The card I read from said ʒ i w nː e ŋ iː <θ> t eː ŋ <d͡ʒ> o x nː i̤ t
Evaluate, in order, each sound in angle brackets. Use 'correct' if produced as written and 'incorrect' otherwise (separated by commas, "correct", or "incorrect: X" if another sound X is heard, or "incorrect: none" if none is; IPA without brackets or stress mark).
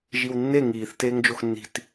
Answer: correct, correct